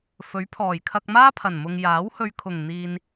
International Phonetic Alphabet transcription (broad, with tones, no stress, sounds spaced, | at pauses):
f ɵ˨˥ ɥ pʰ ɔː˨˩ j kʰ ɐ˧ k̚ m aː˥ pʰ ɐ˨˩ n m ʊ˨ ŋ j aː˨˥ w h ɵ˧ ɥ kʰ ʊ˨˩ ŋ n̪ iː˨ n